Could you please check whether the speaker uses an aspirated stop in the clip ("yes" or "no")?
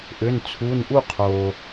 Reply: yes